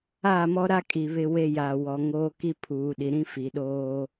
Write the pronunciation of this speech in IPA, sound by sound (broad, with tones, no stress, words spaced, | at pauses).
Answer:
aː˦˨mɔ˦ɾa˦ kʼi˨βɪ˦we˦ ja˨wɔ˨ ŋoː˦ki˦ pʰuː˨ɗi˨ɾĩ˦ fi˨ɗoː˦